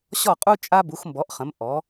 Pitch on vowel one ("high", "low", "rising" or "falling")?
falling